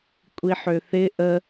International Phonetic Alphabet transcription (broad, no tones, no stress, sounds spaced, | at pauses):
kʷʼ i ħ ø θ ɪ ʔ ə